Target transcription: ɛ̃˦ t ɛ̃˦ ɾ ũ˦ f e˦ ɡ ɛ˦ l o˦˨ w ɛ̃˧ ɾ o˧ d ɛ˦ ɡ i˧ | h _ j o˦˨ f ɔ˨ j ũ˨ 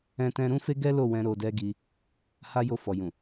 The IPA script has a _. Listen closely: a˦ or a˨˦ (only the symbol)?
a˦